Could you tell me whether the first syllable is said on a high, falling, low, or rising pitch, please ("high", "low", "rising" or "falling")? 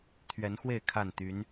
rising